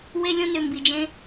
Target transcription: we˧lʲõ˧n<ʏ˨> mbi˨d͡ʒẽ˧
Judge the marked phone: correct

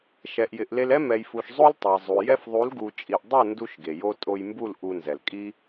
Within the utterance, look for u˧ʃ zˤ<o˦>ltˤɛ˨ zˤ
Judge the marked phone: correct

